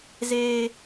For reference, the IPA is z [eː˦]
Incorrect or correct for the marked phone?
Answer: correct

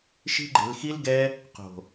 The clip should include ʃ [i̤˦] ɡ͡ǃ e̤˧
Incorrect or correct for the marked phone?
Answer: correct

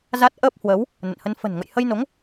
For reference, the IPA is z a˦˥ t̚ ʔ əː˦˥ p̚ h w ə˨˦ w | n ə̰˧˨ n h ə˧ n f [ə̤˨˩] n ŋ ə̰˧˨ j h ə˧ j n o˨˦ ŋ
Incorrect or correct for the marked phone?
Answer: correct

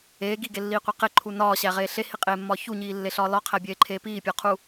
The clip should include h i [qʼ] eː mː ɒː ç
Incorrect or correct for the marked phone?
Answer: correct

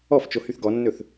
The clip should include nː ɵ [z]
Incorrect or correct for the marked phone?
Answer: incorrect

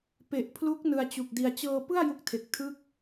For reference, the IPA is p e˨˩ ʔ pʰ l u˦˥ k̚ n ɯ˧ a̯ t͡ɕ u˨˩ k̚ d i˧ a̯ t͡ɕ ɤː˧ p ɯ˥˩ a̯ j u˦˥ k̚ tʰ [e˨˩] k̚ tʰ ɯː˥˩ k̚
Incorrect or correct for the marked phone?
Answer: correct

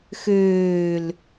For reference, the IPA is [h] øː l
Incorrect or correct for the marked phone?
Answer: incorrect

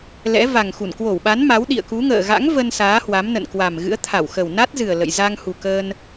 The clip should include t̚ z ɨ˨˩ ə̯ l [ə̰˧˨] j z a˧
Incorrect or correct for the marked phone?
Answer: correct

